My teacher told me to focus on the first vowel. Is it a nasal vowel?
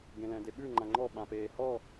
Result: yes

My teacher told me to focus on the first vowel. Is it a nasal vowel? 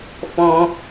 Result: yes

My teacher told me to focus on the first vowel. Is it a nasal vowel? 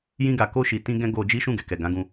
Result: yes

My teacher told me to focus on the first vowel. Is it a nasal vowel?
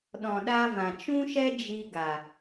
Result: yes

